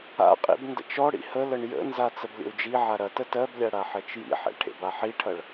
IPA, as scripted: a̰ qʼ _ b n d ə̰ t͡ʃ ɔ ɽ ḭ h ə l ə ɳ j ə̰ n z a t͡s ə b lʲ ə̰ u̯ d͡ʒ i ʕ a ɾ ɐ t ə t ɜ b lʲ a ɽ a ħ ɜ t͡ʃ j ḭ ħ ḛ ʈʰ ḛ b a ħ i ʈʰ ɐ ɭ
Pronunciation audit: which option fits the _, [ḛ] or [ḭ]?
ḭ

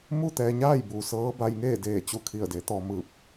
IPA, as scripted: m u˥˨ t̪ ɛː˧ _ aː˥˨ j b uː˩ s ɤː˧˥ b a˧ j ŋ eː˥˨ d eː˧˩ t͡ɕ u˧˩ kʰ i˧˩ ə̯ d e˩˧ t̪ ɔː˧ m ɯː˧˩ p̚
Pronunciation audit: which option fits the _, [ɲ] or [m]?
ɲ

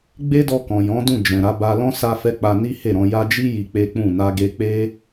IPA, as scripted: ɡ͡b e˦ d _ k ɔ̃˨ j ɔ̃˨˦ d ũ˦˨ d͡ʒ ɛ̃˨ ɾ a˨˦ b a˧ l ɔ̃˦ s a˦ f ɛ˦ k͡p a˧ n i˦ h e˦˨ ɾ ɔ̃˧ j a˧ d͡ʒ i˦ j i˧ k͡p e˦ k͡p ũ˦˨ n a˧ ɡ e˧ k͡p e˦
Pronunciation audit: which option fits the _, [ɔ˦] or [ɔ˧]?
ɔ˧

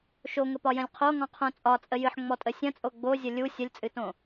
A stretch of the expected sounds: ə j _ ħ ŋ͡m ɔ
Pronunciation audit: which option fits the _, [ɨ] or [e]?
ɨ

